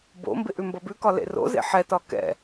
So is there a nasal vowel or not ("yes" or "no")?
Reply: no